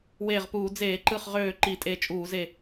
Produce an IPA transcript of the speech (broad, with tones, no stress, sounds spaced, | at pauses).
w eː˧˩ ʁ p uː˧˩˧ d͡z eː˧˩˧ ǃ ɯ˧˩ χ ʁ øː˧˩ ǃ i˧˩˧ tʼ e˧˩ t͡ʃʼ uː˧˩˧ z e˧˩